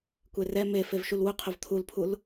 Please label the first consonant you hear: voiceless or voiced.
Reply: voiceless